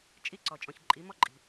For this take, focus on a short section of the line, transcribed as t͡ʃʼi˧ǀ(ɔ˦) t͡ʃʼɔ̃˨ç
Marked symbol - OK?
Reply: no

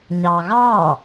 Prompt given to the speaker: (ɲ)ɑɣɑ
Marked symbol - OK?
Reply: yes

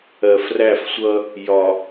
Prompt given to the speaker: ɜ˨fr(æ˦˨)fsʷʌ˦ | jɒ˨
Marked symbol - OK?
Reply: yes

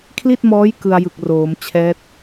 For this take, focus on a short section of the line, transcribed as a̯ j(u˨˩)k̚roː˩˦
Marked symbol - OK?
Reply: no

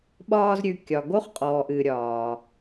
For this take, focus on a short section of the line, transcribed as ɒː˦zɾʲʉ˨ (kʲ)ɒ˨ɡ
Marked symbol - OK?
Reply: yes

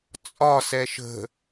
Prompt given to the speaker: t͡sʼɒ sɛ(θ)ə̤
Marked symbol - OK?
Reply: no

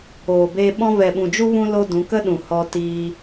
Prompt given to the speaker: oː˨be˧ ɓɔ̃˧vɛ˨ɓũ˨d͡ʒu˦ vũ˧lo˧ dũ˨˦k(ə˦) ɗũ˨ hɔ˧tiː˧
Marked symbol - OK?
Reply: yes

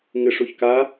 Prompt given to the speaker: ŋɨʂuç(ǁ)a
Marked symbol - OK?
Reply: no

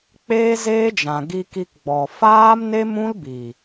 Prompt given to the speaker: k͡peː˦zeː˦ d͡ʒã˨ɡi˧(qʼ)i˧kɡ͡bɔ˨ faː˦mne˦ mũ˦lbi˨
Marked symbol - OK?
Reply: no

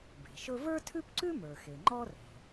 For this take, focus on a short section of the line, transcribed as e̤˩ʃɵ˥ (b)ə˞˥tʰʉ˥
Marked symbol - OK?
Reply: no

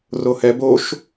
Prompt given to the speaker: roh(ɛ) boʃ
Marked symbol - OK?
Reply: yes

